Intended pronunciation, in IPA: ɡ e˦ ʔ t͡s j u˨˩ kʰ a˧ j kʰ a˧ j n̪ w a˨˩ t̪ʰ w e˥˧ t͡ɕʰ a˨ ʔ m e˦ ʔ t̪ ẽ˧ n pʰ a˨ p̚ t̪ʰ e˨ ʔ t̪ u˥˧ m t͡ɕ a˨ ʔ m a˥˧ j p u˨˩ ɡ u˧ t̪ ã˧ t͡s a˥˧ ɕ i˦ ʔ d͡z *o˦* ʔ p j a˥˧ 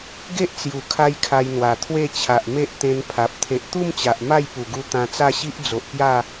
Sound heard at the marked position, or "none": o˨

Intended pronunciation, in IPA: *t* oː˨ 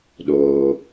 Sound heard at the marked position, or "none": ɗ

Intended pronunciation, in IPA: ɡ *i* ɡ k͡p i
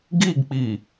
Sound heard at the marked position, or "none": i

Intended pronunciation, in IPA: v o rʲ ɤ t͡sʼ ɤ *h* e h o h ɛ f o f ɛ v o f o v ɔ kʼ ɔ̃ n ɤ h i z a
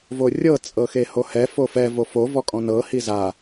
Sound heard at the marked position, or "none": x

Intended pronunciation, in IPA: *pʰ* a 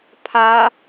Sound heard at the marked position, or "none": pʰ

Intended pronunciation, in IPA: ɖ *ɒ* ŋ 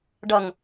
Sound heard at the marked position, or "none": ʌ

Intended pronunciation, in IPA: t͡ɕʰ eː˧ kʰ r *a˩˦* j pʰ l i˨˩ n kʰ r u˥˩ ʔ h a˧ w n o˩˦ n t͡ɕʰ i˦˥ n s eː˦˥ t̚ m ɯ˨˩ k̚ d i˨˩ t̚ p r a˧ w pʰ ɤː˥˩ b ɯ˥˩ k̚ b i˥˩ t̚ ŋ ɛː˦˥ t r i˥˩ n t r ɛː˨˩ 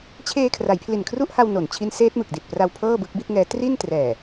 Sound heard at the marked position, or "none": a˩˦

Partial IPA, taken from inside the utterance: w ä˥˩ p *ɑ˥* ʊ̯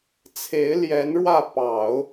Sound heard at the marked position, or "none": ɑ˨˩˦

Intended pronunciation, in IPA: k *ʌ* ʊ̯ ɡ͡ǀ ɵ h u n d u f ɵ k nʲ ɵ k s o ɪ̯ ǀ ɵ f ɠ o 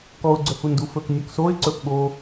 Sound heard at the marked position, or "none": ɔ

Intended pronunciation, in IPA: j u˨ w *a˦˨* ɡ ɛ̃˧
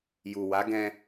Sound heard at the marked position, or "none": a˨˦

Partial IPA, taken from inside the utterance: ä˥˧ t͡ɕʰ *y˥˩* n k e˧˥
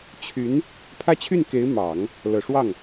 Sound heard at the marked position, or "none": y˥˩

